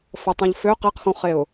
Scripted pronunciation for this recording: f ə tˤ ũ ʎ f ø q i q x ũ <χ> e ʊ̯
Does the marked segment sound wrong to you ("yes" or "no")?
no